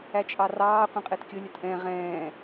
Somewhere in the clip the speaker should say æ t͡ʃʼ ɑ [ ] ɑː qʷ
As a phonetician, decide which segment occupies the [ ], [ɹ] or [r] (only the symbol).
r